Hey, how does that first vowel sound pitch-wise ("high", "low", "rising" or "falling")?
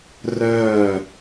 falling